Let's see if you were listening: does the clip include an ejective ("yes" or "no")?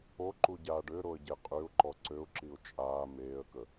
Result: yes